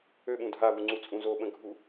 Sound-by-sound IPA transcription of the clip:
ø ɓ ũ dʱ a v u ŋ͡ǀ u t͡sʼ ũ z o ɓ ə̃ ɡʱ u

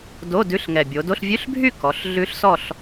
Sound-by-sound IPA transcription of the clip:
d o˧˥˧ d ʉ˧˥˧ ɬ ŋ ɛ˨˩ bʲ o˩˧ d o˧˥˧ ɬ vʲ ʉ˧˥˧ ɬ bʱ y˥˨ k ɔ˩˧ ɬ ɮ ʉ˦˥ ɬ s ɔ˥˨ ɬ

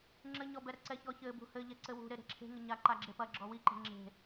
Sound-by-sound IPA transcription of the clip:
ŋ͡ǁ ɘ ɲ ɔ b ɛ ɾ ɐ ǀ ɛ ç ɔ ç ɘ b ṳ h ɘ ʎ ɛ ǀ ɘ w ṳ ɾ e ɾ e̤ ǁʰ e̤ ŋ ɘ ɲ a ǃ a ɡ͡ǁ e p ɐ ɡ͡ǁ ɔ w i ǃ e̤ ŋ͡ǁ e̤

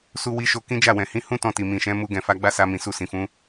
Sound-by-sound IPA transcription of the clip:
s u˧ w i˧ ʃ o˧ k ĩ˦ d͡ʒ a˦˨ w ɛ̃˨ h ĩ˧ h ũ˦ t ɔ̃˧ t i˨ m ĩ˨ ʃ ɛ̃˨˦ m u˧ ɡ ɛ̃˨ f a˧ ɡ͡b a˦ s a˧ m ĩ˨ s u˧ s ĩ˨ f ũ˨˦

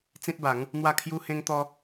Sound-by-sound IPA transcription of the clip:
t͡s ĩ˦ t̚ b a˨˦ ŋ | n̪ w a˥˧ kʰ j u˦ h ẽ˦ ŋ t̪ ɔ˦

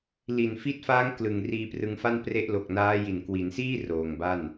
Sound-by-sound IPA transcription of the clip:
l i˨˩ n f i˦˥ t̚ f aː˦˥ ŋ k l ɯ˨˩ ŋ r iː˧ p r ɯ˧ ŋ f a˥˩ n p r e˦˥ ʔ l o˨˩ k̚ n aː˦˥ j i˨˩ n k w i˩˦ n s iː˥˩ r oː˨˩ ŋ b a˥˩ n

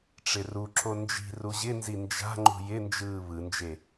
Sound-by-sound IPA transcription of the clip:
ʈ͡ʂ ɪ r u ǁ o n d͡ʒ i̤ r u ʑ ɪ n z i n d͡ʒ a̤ ŋ͡ǃ ṳ j ɪ n d͡ʒ ɯː β ɯ n d͡ʒ e

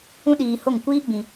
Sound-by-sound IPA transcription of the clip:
ũ˦ ɗ iː˧ h o˦˨ ŋ kʷ iː˦ ɡ͡b ĩ˧

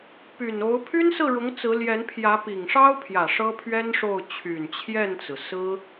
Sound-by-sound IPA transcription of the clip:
p y˨˩ n o˧˥ ʊ̯ pʰ y˥ n s ɹ̩˥˩ ɻ ʊ˧˥ ŋ t͡s ɹ̩˧˥ l j ɛ˧˥ n pʰ j ä˧˥ p i˨˩ ŋ ʂ ɑ˥ ʊ̯ pʰ j ä˨˩ ʂ ɤ˥ pʰ ɥ ɛ˥ n ʂ o˥˩ ʊ̯ t͡ɕʰ y˨˩ n t͡ɕʰ j ɛ˥˩ n t͡s ɹ̩˩ s ɹ̩˥

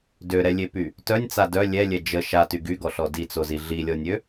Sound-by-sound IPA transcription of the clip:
d ø ɾ ɛ lʲ e p y | t œ nʲ t͡s a d œ lʲ ɛ lʲ ɛ d͡ʒ ə ʃ a t y ɡ y ɡ ɔ ɬ ɔ d i t͡s o z i ɮ i lʲ ɔ nʲ ø

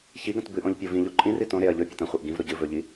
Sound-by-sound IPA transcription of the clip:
ç i ɡ ɐ̃ t b ɨ ʔ õ ʎ pʲ o v ĩ ʎ o ǃʼ ĩ r i t õ ɾ e ɐ̯ ʎ ɵ pʲ e t ɐ̃ χʷ e ʔ ɡ ĩ v ɾ o ɟ ɨ v ɵ ʎ i

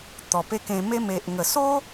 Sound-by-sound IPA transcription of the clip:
t̪ ɔ˨˩ p e˧ k ẽ˧ m e˦ m e˨ ʔ ŋ ə˨˩ s o˦

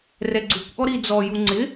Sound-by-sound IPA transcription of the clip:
r ɛ ɡ͡ǀ u kʷ ʔ ɔ ɾ i d͡z ɔ j u ŋ͡ǀ ɪ

